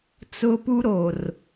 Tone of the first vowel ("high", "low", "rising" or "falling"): high